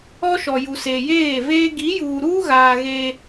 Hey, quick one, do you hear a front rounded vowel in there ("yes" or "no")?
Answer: no